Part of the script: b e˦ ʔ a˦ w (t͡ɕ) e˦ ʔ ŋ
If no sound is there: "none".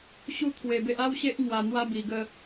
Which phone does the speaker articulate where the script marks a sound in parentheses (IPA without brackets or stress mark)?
ɕ